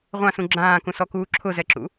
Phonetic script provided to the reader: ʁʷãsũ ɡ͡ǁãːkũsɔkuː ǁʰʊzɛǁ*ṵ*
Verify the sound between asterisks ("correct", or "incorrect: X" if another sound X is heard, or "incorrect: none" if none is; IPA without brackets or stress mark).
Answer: correct